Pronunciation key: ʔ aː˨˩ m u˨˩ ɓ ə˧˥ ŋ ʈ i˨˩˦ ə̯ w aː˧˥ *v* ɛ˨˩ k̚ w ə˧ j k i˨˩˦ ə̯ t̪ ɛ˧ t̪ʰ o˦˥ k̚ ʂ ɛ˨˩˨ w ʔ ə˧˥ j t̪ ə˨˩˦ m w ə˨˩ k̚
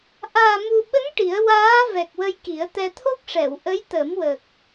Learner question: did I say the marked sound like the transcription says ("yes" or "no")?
yes